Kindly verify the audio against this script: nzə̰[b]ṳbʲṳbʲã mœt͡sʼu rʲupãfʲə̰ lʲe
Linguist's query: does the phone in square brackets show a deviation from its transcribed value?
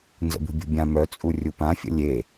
no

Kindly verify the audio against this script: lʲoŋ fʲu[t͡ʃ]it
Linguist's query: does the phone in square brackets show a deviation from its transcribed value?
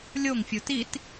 yes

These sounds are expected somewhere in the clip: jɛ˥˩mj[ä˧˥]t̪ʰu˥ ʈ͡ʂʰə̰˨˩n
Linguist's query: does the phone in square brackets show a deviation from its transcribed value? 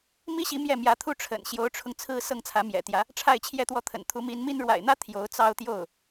no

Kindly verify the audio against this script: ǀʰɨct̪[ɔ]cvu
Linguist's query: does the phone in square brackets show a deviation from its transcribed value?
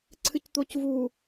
yes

